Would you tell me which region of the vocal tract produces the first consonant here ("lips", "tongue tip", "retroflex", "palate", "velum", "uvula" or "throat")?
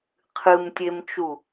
uvula